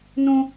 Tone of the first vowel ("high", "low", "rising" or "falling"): high